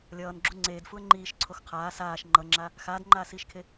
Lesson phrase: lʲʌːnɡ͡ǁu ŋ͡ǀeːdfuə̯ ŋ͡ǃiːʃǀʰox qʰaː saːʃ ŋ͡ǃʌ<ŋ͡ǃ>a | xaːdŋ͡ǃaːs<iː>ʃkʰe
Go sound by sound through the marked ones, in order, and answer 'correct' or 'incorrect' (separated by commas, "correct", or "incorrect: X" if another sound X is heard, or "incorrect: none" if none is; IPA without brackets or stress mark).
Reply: incorrect: ŋ͡ǁ, correct